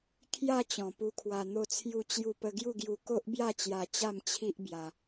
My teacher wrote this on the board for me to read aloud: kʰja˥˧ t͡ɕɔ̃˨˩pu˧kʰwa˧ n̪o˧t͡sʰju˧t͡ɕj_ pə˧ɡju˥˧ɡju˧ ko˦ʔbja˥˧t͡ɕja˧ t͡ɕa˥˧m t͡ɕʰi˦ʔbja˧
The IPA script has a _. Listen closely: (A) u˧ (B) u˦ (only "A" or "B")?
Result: A